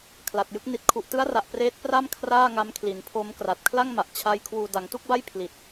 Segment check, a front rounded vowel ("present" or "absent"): absent